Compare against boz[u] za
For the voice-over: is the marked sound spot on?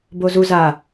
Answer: yes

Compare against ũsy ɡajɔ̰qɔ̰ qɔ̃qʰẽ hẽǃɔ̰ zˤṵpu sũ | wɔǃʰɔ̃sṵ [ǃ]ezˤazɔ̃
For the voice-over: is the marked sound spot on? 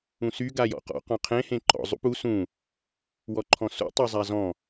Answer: no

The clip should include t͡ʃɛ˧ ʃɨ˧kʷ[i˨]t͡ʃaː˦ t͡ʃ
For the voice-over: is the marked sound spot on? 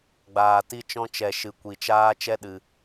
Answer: no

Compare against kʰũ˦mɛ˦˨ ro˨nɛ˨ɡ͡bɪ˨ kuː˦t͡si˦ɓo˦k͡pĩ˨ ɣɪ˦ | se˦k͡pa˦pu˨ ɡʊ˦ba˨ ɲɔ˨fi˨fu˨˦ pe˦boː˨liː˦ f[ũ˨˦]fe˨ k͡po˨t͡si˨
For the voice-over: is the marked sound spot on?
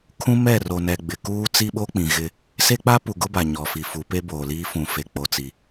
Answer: no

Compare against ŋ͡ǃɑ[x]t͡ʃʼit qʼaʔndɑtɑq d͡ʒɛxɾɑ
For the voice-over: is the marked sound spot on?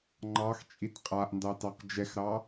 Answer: yes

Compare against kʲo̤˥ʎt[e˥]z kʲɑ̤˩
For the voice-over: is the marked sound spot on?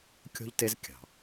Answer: yes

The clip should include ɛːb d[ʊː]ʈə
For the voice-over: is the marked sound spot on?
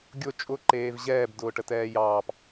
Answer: yes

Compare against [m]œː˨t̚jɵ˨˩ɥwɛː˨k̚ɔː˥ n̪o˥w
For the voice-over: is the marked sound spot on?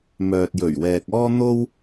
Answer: yes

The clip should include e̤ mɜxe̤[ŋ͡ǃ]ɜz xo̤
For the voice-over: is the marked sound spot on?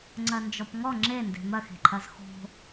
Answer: no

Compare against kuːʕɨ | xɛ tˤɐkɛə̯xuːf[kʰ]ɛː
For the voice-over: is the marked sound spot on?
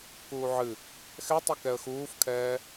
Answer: yes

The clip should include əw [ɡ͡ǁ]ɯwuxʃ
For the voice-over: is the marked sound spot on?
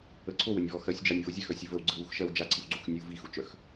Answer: no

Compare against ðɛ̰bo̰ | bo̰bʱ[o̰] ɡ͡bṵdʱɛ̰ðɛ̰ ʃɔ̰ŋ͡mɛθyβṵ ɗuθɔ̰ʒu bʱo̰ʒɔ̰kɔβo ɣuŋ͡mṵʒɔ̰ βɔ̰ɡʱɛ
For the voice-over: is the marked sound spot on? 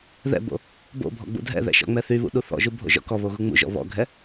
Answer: no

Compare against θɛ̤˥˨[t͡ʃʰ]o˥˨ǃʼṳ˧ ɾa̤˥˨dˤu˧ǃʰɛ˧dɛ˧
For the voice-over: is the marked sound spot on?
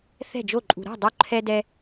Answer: no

